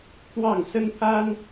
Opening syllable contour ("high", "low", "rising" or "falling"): falling